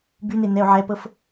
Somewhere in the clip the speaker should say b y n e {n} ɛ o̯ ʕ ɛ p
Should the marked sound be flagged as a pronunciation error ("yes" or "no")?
no